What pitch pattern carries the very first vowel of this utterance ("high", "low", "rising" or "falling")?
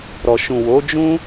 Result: low